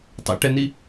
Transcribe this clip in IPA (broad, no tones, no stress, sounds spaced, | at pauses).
tˤ ɛ̰ ʈ ɛ n i